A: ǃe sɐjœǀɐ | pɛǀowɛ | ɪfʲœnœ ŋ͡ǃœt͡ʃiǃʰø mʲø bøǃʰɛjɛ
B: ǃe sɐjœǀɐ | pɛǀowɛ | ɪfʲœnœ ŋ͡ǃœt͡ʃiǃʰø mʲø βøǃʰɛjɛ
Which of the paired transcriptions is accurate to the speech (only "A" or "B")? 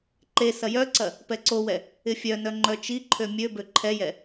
A